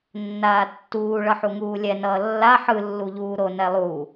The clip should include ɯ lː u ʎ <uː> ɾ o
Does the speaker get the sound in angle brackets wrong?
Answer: no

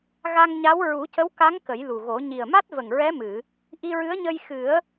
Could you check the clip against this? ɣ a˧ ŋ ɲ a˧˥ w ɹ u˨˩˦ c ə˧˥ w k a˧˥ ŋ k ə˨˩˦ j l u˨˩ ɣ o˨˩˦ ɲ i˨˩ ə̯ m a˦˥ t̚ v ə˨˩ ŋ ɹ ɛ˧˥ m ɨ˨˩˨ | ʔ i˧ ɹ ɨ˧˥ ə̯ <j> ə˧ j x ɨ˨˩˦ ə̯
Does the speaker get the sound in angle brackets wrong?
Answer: yes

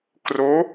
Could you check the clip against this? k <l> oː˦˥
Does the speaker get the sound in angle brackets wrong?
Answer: yes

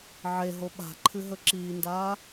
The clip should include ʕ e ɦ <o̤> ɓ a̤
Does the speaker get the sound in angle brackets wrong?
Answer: yes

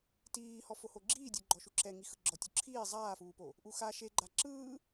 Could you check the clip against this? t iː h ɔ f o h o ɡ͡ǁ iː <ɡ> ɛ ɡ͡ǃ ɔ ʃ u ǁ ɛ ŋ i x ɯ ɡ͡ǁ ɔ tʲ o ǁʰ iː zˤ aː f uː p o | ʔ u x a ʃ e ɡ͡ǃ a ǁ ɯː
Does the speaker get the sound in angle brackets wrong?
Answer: yes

